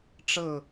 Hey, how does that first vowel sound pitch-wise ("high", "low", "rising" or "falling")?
falling